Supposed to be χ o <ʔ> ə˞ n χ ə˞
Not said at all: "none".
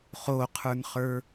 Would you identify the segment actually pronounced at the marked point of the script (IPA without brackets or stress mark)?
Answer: qʰ